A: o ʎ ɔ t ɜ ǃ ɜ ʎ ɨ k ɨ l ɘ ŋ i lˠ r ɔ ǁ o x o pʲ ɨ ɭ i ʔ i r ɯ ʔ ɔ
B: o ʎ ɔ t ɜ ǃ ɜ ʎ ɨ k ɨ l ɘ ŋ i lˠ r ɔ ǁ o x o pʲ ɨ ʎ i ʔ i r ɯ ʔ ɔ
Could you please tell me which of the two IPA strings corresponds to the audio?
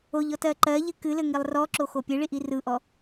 A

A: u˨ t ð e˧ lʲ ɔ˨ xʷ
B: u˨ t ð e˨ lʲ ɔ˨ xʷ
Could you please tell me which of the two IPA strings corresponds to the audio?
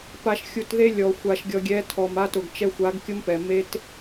A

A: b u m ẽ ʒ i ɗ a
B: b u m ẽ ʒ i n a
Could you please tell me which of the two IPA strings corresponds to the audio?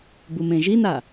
B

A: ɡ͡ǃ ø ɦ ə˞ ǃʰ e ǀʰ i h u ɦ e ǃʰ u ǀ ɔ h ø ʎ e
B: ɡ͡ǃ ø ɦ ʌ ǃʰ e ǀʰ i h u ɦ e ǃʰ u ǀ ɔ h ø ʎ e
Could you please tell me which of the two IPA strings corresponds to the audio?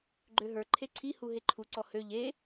A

